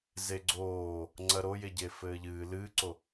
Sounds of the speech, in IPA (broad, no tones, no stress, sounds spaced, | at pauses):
z e ɡ͡ǀ oː | ŋ͡ǀ ɐ ɾ o j e ɟ e f ɘː ʎ ɨː l ɨː ǀ o